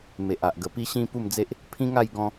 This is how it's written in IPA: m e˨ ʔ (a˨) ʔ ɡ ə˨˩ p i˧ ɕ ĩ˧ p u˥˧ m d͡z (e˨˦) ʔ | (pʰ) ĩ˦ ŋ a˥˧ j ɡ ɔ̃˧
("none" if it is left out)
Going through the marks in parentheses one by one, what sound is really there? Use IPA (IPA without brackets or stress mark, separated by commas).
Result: a˨, e˦, pʰ